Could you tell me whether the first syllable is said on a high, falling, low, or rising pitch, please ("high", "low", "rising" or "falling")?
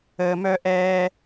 low